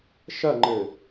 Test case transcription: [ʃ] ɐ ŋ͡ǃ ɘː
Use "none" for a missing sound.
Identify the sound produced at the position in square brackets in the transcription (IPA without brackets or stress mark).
ʃ